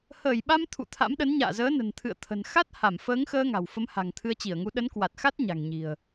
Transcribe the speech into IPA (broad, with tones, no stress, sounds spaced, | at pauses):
h əː˧˩ j ɓ a˧ m t̪ʰ ṵ˧˨ t̪ʰ a̰˧˥ m ɗ ə˨˦ n ɲ a̰ː˧˨ z əː˨˦ n ə̤˨˩ n t̪ʰ ɨ̰˧˨ ə̯ t̪ʰ ə̤˨˩ n x a˦˥ t̚ h a˧˩ m f əː˨˦ ŋ x əː˧ ŋ a̤˨˩ w f ə˨˦ m h a̤˨˩ ŋ t̪ʰ ɨ˧ ə̯ t͡ɕ i˧˩ ə̯ ŋ u˨˦ ɗ ə˨˦ n k w a˨˩ t̚ x a˦˥ t̚ ɲ a̤˨˩ ŋ ɲ i̤˨˩ ə̯